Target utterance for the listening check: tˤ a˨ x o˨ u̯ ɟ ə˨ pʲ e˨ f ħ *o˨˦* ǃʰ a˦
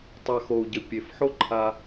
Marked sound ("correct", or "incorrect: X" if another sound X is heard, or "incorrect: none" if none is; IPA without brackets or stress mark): incorrect: o˦